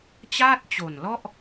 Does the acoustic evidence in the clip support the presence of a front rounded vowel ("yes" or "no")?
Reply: no